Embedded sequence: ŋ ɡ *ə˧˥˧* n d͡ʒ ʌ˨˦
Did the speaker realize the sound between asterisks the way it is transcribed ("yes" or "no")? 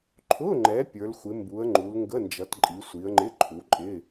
yes